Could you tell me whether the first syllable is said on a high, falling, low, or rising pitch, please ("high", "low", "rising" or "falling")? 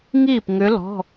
falling